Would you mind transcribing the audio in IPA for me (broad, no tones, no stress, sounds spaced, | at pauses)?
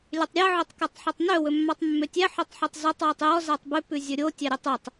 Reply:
lʲ ø tˤ ɾʲ æ ʕ o tˤ k ɛ tˤ ħ ɵ tˤ n œ w ɵ mː ɑ tˤ mː ø tʲ æ ħ œ tˤ ħ y tˤ z œ tˤ w y tˤ j ɔ z æ tˤ b ʉ p ʉ zʲ ɵ ɾʲ o tʲ æ ɾʲ ø tˤ y tˤ